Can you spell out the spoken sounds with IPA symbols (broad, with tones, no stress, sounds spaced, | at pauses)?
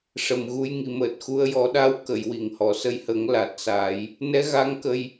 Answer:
ʂ ə˨˩ m ɣ u˧ j ŋ i˨˩˨ m əː˨˩ t̚ x u˧ ə̯ j ɔ˨˩˦ ɗ a˧˥ w k ə˨˩˨ j w i˨˩˨ ŋ h ɔ˨˩˨ s ə˧ j h ə˨˩˦ ŋ l a˨˩ t̚ s a˨˩˦ j | n ɛ˧˥ ɣ a˧˥ ŋ k ə˧ j